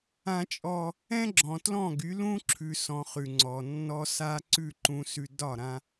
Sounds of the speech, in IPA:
ã˦ t͡ʃʼ ɔ˦ | ɛ̃˦ ɡ͡ǁ ɔ̃˨ t l ɔ̃˦˨ ɡ y˨˦ l ũ˦ ǁʰ ʉ˨ s ɔ̃˨ χ ʉ˨ ŋ͡ǀ ɔ˨ nː ɔ˦ s a˦ ǀ ʉ˦˨ ǃ ũ˨ s ʉ˨ d ɒ˦˨ ɾ ã˦

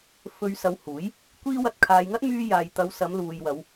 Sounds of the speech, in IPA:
f ɵ˧ ɥ s ɐ˨˧ w h uː˨˥ j | kʷ iː˥ w ɐ˧ t̚ kʰ aː˨ j ŋ ɐ˥ t̚ m yː˧ j aː˨ j t̪ ɐ˨˧ w s ɐ˨˧ m l uː˨ j w ɐ˨˧ w

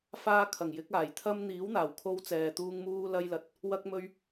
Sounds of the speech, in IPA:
f aː˧ kʰ ɐ˨˩ ŋ j ɪ˨˥ k̚ aː˨˩ j t̪ʰ ɐ˧ m n̪ iː˨˥ w n̪ aː˨˩ w kʰ o˧ w t͡s ɛː˨ t̪ uː˧ ŋ m uː˧ l ɐ˧ j l ɐ˨ t̚ | w ɐ˧ k̚ m ɵ˧ ɥ

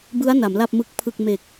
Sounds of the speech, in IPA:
b ɯ˦˥ a̯ n a˩˦ m l a˥˩ p̚ m ɯ˦˥ k̚ pʰ ɯ˨˩ k̚ m e˨˩ k̚

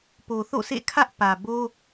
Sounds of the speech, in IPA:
p o˨ θ o̰˦˨ sʰ ḛ˦˨ kʰ ä˦ ʔ p ä˨ b o˦

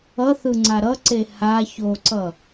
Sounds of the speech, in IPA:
ʌ θ ɯ ŋ͡ǀ a ɾ ʌ ǀ e h a ç o ǀ ʌ

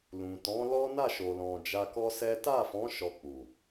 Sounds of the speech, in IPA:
l ũ˨ t ɔ̃˨˦ l ɔ˦ n a˦˨ ʃ o˨ l ɔ̃˨ d͡ʒ a˧ k ɔ˦ s ɛ˦ t a˦˨ f ɔ̃˨˦ ʃ ɔ˧ k͡p u˨

